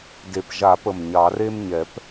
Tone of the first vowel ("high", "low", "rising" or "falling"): low